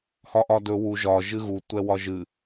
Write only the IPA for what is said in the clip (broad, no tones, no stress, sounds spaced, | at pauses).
h ɒ ʔ ɒ d ɵ w u ʒ ɒ ʒ ɨ ɣ u tʷ ɛ w ɒ ʒ ɨ